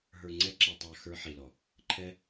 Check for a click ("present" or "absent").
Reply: present